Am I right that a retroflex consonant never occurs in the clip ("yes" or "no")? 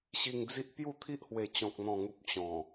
yes